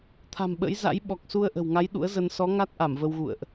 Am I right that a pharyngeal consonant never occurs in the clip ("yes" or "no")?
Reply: yes